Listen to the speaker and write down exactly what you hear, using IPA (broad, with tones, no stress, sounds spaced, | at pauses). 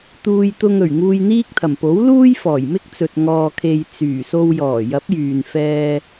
t̪ uː˧ j t̪ ʊ˧ ŋ ɵ˨˩ ɥ ŋ uː˧ j n̪ iː˥ k̚ t̪ʰ ɐ˨˩ m p o˨˥ w l uː˥ j f ɔː˨˩ j m ɪ˥ k̚ t͡s ɵ˨ t̚ ŋ ɔː˨ kʰ e˨ j t͡s yː˨˩ s o˧ w j ɔː˨˩ j ɐ˨˥ p̚ j yː˨ n f ɛː˧